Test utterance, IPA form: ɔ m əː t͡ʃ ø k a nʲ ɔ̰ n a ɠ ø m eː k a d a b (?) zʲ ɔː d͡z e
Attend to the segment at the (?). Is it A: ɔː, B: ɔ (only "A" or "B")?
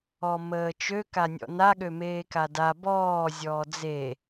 A